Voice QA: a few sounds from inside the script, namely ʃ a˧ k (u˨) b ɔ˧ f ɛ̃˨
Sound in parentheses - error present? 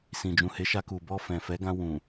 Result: no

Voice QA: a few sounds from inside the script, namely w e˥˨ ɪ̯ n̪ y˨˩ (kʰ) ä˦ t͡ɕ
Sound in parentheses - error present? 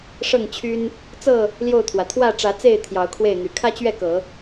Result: no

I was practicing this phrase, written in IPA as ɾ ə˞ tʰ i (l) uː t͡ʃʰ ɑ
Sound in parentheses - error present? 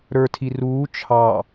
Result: yes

